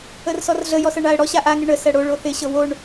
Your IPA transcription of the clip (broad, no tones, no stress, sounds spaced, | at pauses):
ə r s ɔ r ɮ ə j ɔ s ɤ ɳ a ə̯ ɽ ɔ ɕ a ʔ a ŋ ɪ ɳ ə s ɜ ɽ o ɭ o θ ɪ ɕ ɤ w o ɳ